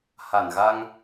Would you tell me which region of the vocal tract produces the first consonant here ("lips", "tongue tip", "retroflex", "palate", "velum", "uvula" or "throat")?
throat